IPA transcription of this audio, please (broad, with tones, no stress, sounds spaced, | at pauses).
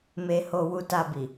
m e˧ h o˧ w u˧ t a˧ b i˨